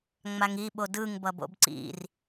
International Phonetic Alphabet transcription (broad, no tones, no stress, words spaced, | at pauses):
ŋ͡maŋi ɓodɯŋ bʌbo̰bǀḭr